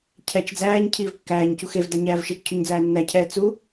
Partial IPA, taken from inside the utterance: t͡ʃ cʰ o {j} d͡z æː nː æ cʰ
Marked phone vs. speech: incorrect: ɲ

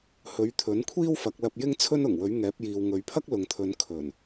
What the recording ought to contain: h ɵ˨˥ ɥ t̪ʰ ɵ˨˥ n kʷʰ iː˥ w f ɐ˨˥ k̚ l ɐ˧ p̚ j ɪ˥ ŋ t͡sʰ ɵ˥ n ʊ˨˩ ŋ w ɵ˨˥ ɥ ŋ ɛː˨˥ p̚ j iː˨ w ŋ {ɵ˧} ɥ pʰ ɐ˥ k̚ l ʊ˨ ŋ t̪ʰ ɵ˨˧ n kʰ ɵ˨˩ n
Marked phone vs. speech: incorrect: ɵ˨˧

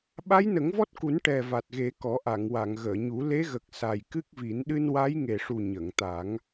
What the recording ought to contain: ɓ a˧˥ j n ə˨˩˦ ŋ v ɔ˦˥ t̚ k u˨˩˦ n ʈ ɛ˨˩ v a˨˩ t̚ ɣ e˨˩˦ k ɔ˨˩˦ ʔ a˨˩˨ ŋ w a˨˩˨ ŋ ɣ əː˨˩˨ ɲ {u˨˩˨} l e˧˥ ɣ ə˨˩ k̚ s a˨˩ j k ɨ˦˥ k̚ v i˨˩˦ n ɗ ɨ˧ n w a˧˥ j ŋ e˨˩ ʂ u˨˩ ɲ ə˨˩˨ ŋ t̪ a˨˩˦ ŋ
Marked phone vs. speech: incorrect: u˨˩˦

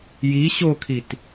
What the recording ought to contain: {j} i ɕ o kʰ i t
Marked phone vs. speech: correct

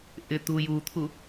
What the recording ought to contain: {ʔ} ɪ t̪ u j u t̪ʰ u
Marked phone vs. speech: correct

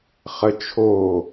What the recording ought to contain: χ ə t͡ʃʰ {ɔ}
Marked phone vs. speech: incorrect: o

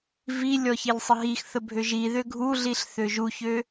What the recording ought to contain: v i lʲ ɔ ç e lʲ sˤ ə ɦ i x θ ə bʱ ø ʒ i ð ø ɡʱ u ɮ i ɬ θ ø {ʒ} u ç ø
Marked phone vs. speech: correct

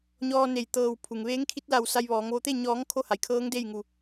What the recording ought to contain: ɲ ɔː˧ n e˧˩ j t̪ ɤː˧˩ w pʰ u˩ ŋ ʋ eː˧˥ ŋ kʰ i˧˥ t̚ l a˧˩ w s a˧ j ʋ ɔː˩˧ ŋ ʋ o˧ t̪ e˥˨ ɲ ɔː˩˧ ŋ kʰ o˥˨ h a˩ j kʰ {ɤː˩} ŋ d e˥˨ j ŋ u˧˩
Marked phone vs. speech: incorrect: ɤː˧˥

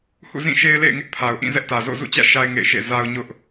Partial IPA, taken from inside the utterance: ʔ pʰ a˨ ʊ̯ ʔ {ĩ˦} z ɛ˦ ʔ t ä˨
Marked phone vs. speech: incorrect: ĩ˦˨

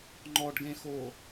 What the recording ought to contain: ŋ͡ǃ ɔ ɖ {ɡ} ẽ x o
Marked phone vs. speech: correct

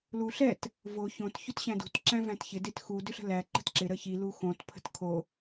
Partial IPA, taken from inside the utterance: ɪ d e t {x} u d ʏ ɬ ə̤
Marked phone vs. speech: correct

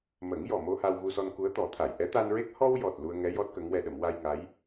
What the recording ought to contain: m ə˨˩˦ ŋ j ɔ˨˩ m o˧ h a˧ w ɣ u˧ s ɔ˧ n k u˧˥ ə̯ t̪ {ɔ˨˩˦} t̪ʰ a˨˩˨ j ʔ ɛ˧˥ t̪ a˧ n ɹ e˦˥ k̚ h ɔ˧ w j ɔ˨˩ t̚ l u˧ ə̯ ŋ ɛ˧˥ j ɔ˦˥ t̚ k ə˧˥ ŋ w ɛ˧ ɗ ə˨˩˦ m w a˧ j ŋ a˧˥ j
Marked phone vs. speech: correct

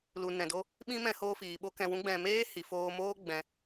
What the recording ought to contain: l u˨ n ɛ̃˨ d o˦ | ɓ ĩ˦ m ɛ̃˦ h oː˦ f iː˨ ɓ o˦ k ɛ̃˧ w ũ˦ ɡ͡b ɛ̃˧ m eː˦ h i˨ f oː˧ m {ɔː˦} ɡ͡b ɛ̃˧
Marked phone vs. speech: incorrect: oː˦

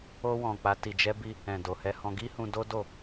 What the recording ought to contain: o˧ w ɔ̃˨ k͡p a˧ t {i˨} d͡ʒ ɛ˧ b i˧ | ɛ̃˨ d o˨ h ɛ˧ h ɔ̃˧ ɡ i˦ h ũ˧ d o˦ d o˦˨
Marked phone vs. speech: correct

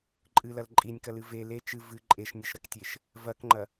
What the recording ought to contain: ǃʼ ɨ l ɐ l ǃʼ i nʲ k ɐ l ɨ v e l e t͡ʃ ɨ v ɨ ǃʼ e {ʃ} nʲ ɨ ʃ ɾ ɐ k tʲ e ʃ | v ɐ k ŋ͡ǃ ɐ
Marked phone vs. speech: correct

